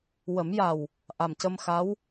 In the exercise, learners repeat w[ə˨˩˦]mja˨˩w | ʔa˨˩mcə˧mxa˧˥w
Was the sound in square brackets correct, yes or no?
yes